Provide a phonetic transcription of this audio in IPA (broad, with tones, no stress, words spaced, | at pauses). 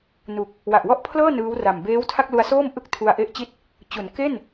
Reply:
nu˨˩k̚ | wa˨˩ʔwɔ˥˩ʔpʰlɤː˥˩ nɯː˦˥wra˨˩m beː˦˥wtʰa˥˩k̚lu˧a̯soː˥˩m ʔɯ˥˩k̚ tʰu˧a̯ʔe˥˩ʔt͡ɕi˥˩t̚ | t͡ɕu˩˦nke˥˩n